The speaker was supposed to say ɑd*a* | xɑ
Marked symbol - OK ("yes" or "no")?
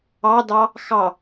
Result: no